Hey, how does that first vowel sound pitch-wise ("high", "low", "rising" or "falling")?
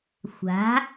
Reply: rising